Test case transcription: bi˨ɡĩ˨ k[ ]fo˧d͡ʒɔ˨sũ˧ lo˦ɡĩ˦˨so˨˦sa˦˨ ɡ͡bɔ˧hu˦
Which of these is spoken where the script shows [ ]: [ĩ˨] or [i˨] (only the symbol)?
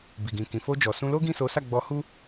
ĩ˨